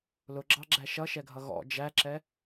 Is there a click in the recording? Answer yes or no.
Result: yes